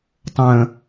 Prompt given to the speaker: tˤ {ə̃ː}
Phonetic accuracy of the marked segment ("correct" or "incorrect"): correct